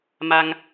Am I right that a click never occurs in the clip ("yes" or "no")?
yes